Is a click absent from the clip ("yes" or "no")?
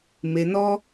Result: yes